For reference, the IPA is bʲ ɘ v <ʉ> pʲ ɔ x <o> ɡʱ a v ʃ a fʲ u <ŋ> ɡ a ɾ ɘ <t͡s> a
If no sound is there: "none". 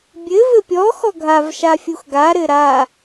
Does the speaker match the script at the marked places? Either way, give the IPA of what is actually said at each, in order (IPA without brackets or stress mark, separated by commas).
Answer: ɘ, ɔ, x, ɾ